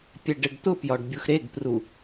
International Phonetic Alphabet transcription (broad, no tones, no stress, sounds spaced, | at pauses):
pʲ ɛ ɖ ɘ ɖ t̪ ʊ p j ɒ ɖ bʲ u x ɾ e ɡ p r u